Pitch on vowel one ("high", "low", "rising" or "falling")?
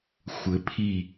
rising